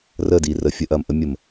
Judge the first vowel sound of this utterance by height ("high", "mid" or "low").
mid